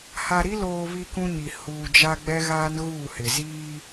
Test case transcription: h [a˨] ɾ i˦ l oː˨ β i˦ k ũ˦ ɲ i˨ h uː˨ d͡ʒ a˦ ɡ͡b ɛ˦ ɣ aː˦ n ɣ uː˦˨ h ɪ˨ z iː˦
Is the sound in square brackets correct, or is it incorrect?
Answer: correct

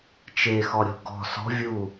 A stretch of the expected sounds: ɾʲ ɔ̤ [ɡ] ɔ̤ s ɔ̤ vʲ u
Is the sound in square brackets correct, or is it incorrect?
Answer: correct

